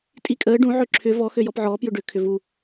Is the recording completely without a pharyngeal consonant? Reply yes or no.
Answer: no